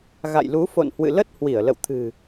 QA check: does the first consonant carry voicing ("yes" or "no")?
yes